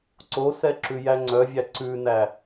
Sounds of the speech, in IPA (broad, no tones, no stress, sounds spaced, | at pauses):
ǀ o s ɛ ǁ ʉ j æ ŋ͡ǀ œ vʲ æ ǀ ʉ n æ